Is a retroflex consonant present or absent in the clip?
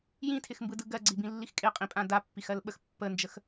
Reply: absent